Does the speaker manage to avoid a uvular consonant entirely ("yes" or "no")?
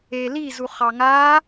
no